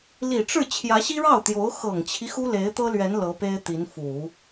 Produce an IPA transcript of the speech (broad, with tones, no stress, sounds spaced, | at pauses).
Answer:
l i˨˩ ʈ͡ʂ ɻ̩˥˩ t͡ɕʰ j ä˧˥ ɕ i˥ ɻ ɑ˥˩ ʊ̯ t̪ j o˧˥ ʊ̯ x ɤ˨˩ ŋ t͡ɕʰ i˦ x u˥ l e˧˥ ɪ̯ t̪ ɤ˥ l ɥ ɛ˧˥ n l ɤ˧˥ p e˥ ɪ̯ t̪ i˧˥ n f u˨˩˦